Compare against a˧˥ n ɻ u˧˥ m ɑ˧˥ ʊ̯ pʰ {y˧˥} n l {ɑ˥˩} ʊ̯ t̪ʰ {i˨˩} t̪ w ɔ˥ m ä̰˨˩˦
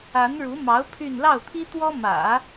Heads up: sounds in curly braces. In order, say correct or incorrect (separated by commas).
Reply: incorrect, correct, incorrect